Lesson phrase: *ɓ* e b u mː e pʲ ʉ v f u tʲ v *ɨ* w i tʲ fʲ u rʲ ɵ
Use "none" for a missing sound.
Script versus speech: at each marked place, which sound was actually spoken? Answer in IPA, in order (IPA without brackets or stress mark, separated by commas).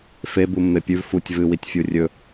f, ɨ